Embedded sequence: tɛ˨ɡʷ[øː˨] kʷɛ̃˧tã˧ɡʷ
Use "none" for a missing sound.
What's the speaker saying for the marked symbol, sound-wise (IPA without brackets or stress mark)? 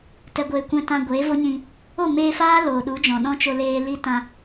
eː˨